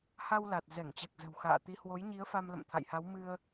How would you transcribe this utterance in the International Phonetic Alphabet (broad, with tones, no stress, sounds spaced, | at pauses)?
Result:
h a˧ w l a˨˩ t̚ z ɛ˧˩ ŋ t͡ɕ ɛ˨˩ k̚ z ə̤˨˩ w x a̰ː˧˨ t̪ i˨˦ h w o˨˦ j ɲ i˨˦ ə̯ f a˧ m l ə̰˧˨ m t̪ʰ a̰˧˨ j h a˨˦ w m ɨ˧ ə̯